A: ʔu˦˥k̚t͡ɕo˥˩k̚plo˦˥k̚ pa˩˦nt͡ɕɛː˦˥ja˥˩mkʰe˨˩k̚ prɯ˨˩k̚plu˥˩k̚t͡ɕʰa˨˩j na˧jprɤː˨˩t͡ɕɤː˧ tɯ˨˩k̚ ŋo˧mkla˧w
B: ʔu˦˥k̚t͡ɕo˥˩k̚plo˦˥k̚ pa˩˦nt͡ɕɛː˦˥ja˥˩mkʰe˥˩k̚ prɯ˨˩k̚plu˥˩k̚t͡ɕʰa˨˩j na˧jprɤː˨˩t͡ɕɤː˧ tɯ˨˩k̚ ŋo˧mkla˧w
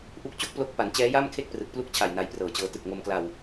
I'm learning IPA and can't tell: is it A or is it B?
B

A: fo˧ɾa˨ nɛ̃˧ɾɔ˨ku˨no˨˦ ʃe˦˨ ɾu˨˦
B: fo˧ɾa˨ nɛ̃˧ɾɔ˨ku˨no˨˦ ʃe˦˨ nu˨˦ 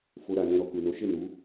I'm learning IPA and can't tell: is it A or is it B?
B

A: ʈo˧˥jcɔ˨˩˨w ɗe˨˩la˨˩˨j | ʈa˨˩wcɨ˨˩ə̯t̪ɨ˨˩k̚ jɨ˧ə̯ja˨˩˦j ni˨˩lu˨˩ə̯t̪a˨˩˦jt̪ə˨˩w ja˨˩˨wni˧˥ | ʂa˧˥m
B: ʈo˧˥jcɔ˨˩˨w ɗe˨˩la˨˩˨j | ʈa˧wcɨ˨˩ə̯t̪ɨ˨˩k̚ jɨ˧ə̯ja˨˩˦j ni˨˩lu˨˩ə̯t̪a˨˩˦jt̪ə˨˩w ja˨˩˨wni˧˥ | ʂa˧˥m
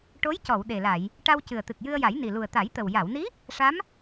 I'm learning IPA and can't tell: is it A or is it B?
B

